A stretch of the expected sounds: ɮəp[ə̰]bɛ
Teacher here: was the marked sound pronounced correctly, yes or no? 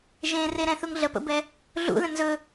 yes